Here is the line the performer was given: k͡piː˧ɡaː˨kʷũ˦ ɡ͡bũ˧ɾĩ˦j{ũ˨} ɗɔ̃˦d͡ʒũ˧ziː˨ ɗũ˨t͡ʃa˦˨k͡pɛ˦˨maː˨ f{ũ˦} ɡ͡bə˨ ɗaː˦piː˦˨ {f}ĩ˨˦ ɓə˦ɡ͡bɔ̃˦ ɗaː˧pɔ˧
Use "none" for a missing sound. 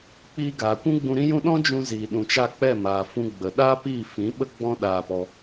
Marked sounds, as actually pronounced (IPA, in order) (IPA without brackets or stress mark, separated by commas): ũ˦, ũ˧, f